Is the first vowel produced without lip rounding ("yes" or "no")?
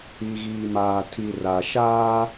yes